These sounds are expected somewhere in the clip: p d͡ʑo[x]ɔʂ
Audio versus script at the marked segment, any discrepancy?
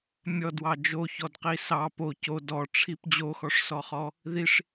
no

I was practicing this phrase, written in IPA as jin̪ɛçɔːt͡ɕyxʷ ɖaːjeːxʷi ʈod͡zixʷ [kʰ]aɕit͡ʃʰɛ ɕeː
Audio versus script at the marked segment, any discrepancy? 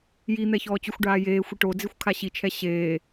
no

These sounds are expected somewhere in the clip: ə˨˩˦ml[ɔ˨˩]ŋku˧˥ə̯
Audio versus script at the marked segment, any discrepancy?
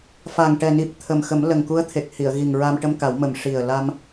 yes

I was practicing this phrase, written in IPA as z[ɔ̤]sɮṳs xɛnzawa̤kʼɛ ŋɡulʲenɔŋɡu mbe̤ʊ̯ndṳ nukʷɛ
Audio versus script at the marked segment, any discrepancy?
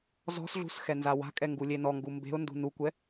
no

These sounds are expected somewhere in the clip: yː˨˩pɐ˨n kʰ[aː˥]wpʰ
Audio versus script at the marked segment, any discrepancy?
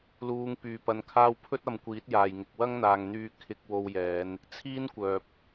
yes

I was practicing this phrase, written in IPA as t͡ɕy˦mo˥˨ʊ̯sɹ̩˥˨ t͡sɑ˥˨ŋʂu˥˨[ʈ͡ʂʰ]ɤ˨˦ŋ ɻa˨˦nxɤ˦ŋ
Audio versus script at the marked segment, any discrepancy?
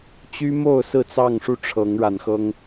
no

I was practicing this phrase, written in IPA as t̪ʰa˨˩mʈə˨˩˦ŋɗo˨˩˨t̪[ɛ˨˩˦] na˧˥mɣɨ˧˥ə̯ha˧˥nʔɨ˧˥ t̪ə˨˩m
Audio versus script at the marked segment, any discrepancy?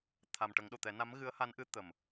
no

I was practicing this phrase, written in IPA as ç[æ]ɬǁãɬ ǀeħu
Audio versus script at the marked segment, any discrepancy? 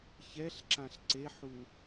yes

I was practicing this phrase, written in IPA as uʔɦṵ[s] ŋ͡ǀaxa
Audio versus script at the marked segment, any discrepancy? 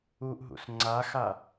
no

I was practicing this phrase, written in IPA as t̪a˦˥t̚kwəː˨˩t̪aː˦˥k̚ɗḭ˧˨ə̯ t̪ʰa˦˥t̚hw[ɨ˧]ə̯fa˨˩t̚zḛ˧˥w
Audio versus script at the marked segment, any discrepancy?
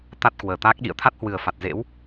yes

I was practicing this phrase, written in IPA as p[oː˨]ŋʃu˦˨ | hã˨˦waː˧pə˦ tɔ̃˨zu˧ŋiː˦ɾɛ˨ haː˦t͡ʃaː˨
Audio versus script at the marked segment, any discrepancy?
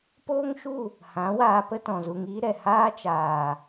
yes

